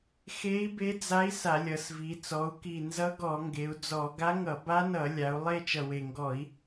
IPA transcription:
xe˧˥i̯be˧˥d͡za˧˥i̯ sa˧˩˧lʲʌ˩˧svi˩˧ t͡sɔ˩˧u̯ki˨˩ nzʌ˧˥ɡɔ˧˩˧ŋɡe˩˧u̯d͡zɔ˧˩˧ ɡa˧˥ŋʌ˧˩˧ ba˧˥nʌ˧˩˧ lʲa˩˧u̯ lˠe˦˨t͡ʃʌ˨˩we˨˩ŋɡɔ˧˩˧i̯

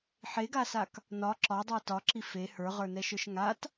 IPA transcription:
ħeɡasak | nɒ ǁɒdˤə˞ tɒǁi fe hə˞ʁə˞nɛʃə˞ʃ ŋat

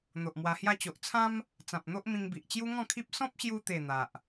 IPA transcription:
n̪o˨ʔmwa˧hja˥˧ t͡ɕo˨ʔt͡sʰã˦m | t͡sã˨p̚n̪o˦ʔmĩ˧ŋbi˨ʔ t͡ɕju˦ŋɔ̃˥˧kʰi˦p̚ sɔ̃˦p̚ɕju˧t̪e˨˩ n̪a˨ʔ

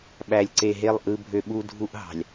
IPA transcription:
ɓæ˨lʲǀe˨ɦe˦˨lˠ ʔɯ˦bʱø˦ ɓu˦dʱu˦ʔɦɑ̤˨lʲ

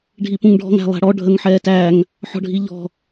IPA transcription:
ɖʱipũŋɖʱɔ̤ŋ æ̤lˠæ̤ɽɔ ɖʱəŋħɛːtæŋ | ħɔ̤ɖʱiʎɔ̤

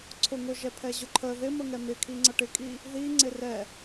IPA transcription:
ǀʰʊ ŋʊʒɛpʰɛ ʑʊǃʰə ðɪmə ŋɛmɪkʰi ŋ͡ǀʌʈɪkʼi | ði ŋ͡ǀɪrɛ

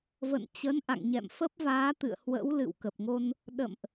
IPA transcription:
və̰˧˨nt͡ɕə˨˦nʔa̰˧˨ŋɲɛ̰˧˨m fə˦˥p̚vaː˨˦t̪ɨ̰˧˨ə̯hwə̰˧˥w lɨ̰˧˨wkə˨˩p̚ŋo˧n | ɗə̰˧˨mʔ

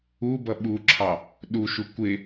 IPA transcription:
ubʌ ɓuǁʰɑ | ɗuʃu kʷɪ

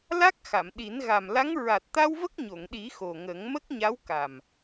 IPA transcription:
la˦˥k̚xa˨˩˨mɗi˨˩˦n ɣa˨˩mla˧˥ŋ ɹa˨˩t̚t̪a˧w və˦˥k̚ɲo˨˩˨ŋɗi˨˩˦ xo˨˩ŋə˨˩˦ŋ mə˦˥k̚ɲa˧˥wka˨˩m

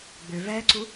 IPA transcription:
ɡ͡bʏ vɛǀu

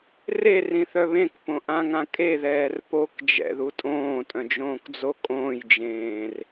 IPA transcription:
rerĩθœ βẽkpõʔãŋã kʼeðɛːr pokd͡ʒɛ̰ðu tʼõːtʼœ̃d͡ʒõːkd͡zo kʼõːjd͡ʒẽːr

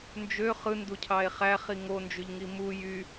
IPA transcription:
nd͡ʒø χɯnducʰɑe̯ χæχi ŋond͡ʒyʎŋi mu jy

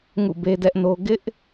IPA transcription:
ŋṵ˦˨be˦dɛ˦ʔno˦ ɡɪ˦ʔ

